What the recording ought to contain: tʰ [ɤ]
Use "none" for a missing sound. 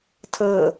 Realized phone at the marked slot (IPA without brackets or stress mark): ɤ